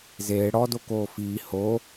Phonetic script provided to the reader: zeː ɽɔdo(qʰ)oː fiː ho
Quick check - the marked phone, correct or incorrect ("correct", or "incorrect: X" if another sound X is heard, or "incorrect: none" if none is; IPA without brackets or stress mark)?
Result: incorrect: k